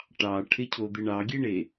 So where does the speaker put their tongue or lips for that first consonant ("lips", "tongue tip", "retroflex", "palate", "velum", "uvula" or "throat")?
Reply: retroflex